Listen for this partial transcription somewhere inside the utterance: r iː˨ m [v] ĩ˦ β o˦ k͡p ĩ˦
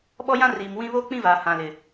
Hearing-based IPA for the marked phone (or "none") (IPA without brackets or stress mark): w